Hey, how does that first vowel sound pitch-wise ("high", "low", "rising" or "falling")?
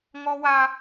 high